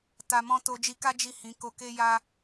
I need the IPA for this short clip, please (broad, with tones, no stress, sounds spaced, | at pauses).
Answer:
t a˧ m ɔ̃˦ t o˧ d͡ʒ i˧ k a˦ d͡ʒ i˦˨ h ĩ˨˦ k o˧ k e˦ j a˦